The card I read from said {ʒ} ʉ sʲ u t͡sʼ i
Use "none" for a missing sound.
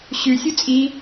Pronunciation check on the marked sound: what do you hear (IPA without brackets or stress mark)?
ɕ